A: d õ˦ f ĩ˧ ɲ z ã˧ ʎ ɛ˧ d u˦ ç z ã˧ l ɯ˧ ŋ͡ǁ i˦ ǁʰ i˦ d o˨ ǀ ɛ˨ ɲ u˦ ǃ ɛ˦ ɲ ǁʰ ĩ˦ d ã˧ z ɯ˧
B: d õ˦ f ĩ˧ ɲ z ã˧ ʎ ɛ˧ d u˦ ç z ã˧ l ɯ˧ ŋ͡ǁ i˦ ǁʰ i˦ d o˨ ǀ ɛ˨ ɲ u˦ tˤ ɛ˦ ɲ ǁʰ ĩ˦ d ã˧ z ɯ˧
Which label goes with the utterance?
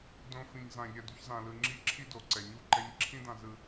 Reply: A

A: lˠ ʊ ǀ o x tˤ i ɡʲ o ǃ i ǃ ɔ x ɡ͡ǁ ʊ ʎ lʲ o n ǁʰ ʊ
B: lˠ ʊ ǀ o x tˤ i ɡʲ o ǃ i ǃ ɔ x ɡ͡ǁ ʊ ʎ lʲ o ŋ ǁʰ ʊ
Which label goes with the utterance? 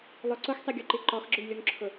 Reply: B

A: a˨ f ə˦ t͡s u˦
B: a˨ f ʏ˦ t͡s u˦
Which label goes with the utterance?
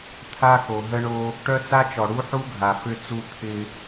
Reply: B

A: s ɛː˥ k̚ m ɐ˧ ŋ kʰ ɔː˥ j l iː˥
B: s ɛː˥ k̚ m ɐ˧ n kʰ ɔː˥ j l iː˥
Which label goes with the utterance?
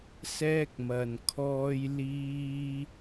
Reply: B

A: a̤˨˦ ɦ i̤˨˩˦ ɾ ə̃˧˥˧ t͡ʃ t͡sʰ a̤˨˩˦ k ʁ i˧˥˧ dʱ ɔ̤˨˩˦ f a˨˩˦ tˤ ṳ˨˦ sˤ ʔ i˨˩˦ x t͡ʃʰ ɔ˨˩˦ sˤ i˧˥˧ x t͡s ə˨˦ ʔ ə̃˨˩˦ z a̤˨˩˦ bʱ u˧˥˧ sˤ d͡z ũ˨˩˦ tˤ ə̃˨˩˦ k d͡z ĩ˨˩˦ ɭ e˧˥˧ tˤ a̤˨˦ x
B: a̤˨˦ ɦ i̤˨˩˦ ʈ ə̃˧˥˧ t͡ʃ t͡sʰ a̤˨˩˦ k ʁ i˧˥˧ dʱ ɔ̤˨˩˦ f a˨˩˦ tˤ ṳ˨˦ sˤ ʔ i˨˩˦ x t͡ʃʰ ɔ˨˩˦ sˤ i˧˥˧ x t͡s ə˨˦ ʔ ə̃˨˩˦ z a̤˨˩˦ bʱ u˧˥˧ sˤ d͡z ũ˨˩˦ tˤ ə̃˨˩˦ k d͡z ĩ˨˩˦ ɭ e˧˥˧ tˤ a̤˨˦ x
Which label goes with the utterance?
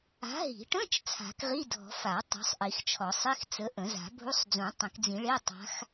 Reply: B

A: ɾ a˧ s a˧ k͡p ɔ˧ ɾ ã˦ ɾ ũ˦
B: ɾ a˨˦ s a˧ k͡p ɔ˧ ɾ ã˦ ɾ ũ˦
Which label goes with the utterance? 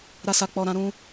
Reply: A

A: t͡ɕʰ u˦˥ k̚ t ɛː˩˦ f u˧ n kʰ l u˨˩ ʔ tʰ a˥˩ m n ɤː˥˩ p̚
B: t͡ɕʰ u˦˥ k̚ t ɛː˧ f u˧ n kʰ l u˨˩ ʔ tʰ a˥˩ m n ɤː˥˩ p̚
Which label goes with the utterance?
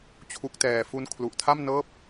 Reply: B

